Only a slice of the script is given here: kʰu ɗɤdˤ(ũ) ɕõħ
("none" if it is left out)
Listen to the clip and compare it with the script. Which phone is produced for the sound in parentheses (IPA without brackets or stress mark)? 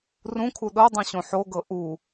ũ